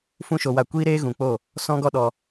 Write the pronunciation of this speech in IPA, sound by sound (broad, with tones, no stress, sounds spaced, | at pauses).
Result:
f ũ˦ ʃ o˧ w a˦˨ kʷ iː˦ ɾ eː˦ ɣ ũ˨ k͡p o˦˨ | s ɔ̃˦ ɡ ɔ˦ ɗ ɔ˧